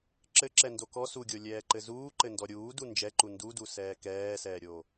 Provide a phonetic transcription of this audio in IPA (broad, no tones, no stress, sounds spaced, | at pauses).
ǁ ɘ ǁ ɛ n d o k ɔ s u ɡʲ o lʲ ɛː ǃ ɘ z uː ǃ ɘ n d ɔ ɾʲ uː d u n d͡ʒ ɛ ǃ u n d u d u s ɛː k ɛː s ɛː ɾʲ o